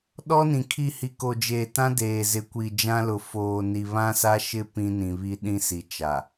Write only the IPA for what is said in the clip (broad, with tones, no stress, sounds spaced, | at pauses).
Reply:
ɗ ɔ˦ n ĩ˨ kʰ i˦˨ h i˨ k o˨ d͡ʒ eː˨ t ã˦ d eː˨ z ɪ˨˦ kʷ i˨ d͡ʒ ã˦ l ʊ˨ f oː˨ n i˨ β ã˦ s a˦ ʃ ɪ˦ p ĩ˦ n ĩ˨ β i˦ ɗ ĩ˦ s i˨ t͡ʃ a˨